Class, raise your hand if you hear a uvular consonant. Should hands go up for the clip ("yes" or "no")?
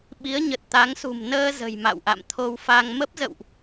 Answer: no